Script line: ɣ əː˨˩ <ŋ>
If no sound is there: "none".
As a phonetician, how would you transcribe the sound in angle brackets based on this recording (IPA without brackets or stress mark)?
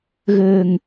ŋ